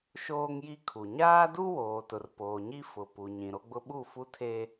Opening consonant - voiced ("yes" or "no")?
no